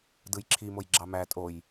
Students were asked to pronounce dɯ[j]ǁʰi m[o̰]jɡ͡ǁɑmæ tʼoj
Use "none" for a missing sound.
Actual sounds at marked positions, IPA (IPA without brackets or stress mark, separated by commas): j, o